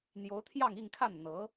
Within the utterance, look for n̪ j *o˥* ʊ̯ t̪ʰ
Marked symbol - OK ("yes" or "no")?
no